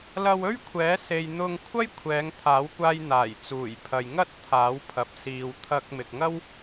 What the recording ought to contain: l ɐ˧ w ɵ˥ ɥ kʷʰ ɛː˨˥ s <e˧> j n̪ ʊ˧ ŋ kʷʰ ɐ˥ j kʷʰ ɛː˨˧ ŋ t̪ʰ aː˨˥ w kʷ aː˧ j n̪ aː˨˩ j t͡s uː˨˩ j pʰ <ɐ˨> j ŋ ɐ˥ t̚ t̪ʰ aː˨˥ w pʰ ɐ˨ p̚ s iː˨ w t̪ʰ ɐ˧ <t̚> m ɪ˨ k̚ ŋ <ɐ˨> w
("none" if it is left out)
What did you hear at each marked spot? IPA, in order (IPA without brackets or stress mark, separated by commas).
e˧, ɐ˨, k̚, ɐ˥